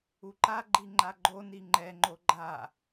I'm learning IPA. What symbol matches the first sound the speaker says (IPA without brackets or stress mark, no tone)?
u